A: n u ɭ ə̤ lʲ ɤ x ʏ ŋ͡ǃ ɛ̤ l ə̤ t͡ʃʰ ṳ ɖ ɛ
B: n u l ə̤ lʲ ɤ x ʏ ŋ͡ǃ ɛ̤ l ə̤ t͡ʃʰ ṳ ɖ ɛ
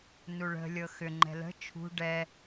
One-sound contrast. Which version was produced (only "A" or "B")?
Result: A